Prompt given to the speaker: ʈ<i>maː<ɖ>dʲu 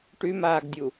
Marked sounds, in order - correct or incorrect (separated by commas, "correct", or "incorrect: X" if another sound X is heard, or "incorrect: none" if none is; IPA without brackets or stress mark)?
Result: incorrect: y, incorrect: ɡ